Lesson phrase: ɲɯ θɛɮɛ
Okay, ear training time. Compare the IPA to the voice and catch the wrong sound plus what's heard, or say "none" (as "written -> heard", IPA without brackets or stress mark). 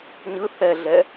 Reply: none